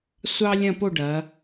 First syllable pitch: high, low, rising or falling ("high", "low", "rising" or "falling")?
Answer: high